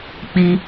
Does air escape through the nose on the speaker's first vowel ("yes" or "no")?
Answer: no